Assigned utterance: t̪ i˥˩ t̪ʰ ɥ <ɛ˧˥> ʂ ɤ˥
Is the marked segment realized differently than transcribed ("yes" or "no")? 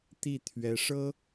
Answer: no